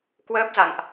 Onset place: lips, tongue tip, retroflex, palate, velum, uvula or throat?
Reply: velum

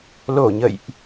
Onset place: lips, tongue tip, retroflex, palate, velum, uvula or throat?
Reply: tongue tip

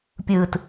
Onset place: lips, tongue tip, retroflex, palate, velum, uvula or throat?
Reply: lips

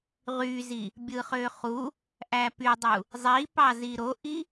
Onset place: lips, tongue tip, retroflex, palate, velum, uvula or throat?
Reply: uvula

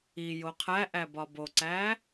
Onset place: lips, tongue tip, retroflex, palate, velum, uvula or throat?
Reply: palate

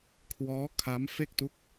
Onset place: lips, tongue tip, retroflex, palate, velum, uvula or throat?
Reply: velum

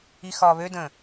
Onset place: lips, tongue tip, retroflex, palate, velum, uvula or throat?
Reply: velum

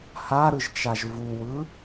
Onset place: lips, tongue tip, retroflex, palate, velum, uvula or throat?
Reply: throat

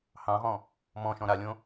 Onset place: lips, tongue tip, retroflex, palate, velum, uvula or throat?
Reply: throat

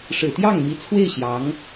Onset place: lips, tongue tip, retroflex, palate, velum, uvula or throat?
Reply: retroflex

